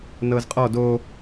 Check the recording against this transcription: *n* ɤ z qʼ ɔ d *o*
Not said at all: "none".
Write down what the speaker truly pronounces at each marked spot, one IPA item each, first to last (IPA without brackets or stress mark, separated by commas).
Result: n, o